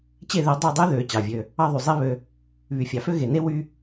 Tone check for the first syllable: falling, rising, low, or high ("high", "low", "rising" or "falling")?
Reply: falling